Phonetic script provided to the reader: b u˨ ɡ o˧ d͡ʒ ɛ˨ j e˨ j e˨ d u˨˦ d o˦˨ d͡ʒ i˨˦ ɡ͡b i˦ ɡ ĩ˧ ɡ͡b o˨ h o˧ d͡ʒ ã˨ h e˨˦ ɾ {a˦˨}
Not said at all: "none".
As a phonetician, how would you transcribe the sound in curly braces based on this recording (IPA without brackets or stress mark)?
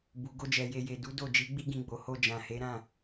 ã˦˨